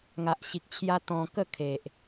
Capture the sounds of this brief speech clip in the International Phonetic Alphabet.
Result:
ŋ a˨ ʔ ɕ i˨ k̚ t͡ɕʰ j a˧ t̪ ɔ̃˧ k ə˥˧ kʰ e˨ ʔ

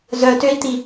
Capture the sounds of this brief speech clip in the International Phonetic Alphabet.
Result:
z œ t ø i̯ t̪ i

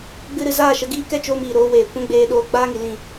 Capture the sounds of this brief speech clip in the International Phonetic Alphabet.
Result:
ɡ͡b ɨ˧ ɾ ɨ˨ z aː˦˨ ʃ ə˧ ɡ iː˦ k ɛ˦ t͡ʃ oː˧ m iː˨ ɾ oː˦ w eː˨ kʷ ɛ̃˦ ɡ͡b eː˧ ɗ oː˧ ɡ͡b aː˦ ŋ i˨ l ĩ˦˨

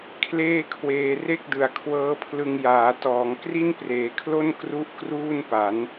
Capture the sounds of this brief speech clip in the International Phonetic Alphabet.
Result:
kʰ l eː˥˩ kʰ w eː˧ r e˥˩ k̚ d ɯ˨˩ a̯ kʰ w ɤː˦˥ pʰ l ɯ˧ ŋ j aː˩˦ t ɔː˩˦ ŋ k r i˥˩ n p r eː˩˦ kʰ l o˥˩ n k r u˥˩ ʔ k r uː˥˩ n p a˩˦ n

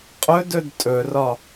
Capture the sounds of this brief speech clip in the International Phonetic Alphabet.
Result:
qʼ ɵ d ɵ d tʼ ɵ r ɒ

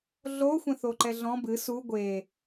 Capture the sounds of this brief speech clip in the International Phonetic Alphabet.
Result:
ɮ o xʷ ɛ̃ θ o ǃ ɛ ɮ ɔ̃ b ɨ s u ɡʷ e

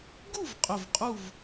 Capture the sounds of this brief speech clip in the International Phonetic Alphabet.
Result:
ɡ u˥˨ v qʼ ɵ˧˩ v qʼ u˥˨ v

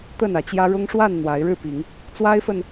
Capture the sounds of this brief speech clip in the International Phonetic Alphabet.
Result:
t̪ ə˥˨ n ä˨˦ t͡ɕ j ä˦ ɻ ʊ˦ ŋ ʂ w a˥˨ n n̪ w a˨˦ ɪ̯ ɻ ɻ̩˥˨ p i˨˦ ŋ | t͡s w a˦ ɪ̯ f ə˨ n

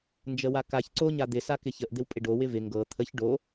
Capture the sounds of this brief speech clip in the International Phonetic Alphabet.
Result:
n d͡ʒ ə w a k a ç ǀ o ɲ a d̪ ɪ s a k ɪ ç ə ʔ d̪ ɪ w pʼ ɪ ɖ o w ɪ v ɪ ŋ ɡ ɤ t̪ʰ ə ç ɖ o

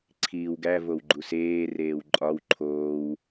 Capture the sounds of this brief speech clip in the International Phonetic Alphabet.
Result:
ǀʰ iː w ɡ æ v o w ɡ͡ǃ u s eː r eː w ǃʼ ɒ w ǃʰ oː w

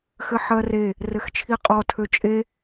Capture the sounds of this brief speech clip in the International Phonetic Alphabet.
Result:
x ɘ ħ ɜ r e | r ɘ x t͡ʃʰ i qʼ ɔ tʰ ø t͡ʃʼ e

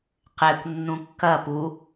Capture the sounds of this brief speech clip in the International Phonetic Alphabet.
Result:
q ɛ kʷ nː ũ kː ɐ p u

